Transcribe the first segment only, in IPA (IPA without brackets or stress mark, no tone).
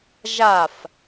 ʒ